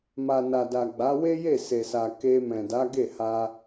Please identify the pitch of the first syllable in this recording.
low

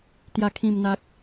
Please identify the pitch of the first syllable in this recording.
low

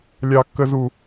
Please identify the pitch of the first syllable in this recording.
low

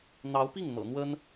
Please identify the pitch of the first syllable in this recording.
rising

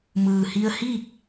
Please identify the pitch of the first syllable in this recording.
low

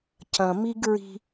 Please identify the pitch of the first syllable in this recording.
low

